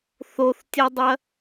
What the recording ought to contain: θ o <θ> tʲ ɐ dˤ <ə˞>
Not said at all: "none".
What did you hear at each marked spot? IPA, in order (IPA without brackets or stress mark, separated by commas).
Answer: θ, ɐ